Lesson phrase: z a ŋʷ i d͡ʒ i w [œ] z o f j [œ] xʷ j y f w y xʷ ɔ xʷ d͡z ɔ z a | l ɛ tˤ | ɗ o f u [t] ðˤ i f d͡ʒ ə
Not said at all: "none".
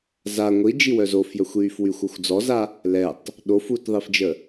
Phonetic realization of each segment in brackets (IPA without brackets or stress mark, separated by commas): œ, œ, t